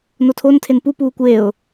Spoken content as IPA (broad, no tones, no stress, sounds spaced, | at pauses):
n o tʰ o n tʰ e n p u p uː kʷ eː ʊ̯